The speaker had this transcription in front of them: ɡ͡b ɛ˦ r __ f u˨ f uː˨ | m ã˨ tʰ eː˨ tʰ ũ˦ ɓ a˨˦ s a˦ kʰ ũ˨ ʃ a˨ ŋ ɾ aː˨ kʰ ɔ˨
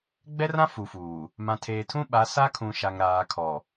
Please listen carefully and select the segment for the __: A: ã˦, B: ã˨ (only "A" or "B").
A